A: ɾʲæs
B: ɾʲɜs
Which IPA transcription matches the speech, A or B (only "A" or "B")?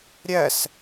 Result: B